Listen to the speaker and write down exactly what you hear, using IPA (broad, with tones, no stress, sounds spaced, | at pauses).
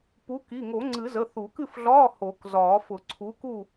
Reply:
p u˨˥ k i˩˧˩ ŋ o˨˩˦ ŋ͡ǀ ɨ˨˩˦ z ə˩˧˩ θ u˨˩˦ k ɨ˥˨ f ɮ ɒː˧˥˧ h o˨˩˦ k z ɒː˨˩˦ f ʊ˨˩˦ ǀʰ u˨˥ k u˥˨